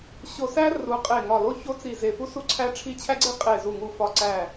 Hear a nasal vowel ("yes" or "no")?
no